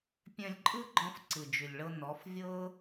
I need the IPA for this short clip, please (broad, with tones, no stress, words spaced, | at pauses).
pʲœ̃˧lʲǃʼɯ˦ɡ͡ǃɔ̃˧f ǀɯ˨d͡ʒʉ˨lʲɭɤ˧ nɔ˨˦fvʲɤ˦